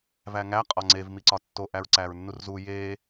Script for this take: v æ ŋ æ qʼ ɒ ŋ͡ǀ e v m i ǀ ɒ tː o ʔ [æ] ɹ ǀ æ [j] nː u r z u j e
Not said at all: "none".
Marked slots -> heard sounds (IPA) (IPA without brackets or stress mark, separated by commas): æ, ɹ